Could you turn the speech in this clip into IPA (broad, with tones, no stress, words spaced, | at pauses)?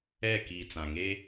ɛ˦˨ki˨ t͡sã˨ŋeː˦